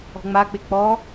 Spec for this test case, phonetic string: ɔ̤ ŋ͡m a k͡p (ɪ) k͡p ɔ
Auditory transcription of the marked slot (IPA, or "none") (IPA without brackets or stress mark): ɪ